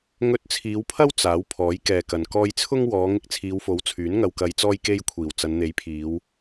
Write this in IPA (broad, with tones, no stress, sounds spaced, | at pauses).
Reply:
ŋ ɵ˧ t̚ t͡sʰ iː˨˧ w pʰ ɐ˥ w t͡s aː˨˥ w pʰ ɔː˨˥ j k ɛː˨ k ɐ˨ n k ɔː˧ j t͡sʰ ʊ˥ ŋ w ɔː˨˧ ŋ ɪ˧ k̚ t͡sʰ iː˨˧ w f o˨˥ w t͡sʰ yː˨˥ n ŋ ɐ˧ w k ɐ˧ j t͡s ɔː˥ j k e˥ j kʷʰ iː˨˩ w t͡s ɐ˨˧ n n̪ e˨˥ j pʰ iː˨˧ w